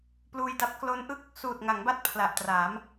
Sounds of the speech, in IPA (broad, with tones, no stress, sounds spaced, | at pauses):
p l uː˧ j d a˦˥ p̚ k l o˦˥ n ʔ ɯ˥˩ k̚ | s uː˨˩ t̚ ŋ a˩˦ ŋ b a˦˥ t̚ pʰ l a˨˩ ʔ t r aː˩˦ m